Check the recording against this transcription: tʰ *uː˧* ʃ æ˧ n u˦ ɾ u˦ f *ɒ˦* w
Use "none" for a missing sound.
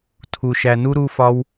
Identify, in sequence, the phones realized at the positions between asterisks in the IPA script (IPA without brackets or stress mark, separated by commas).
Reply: u˧, ɒ˦